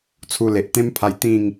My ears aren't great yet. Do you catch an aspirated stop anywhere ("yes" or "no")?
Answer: yes